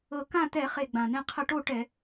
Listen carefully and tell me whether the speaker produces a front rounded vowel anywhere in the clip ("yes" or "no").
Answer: no